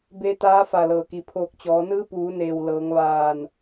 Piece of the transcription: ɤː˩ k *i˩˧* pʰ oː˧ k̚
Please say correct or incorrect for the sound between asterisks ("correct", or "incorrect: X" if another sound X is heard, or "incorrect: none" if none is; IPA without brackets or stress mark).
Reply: correct